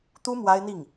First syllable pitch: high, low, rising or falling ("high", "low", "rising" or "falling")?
high